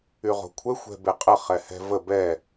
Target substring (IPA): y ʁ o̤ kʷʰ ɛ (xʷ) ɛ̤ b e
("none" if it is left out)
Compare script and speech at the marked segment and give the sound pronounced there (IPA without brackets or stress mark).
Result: xʷ